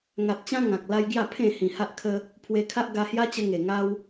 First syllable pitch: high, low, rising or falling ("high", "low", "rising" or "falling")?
low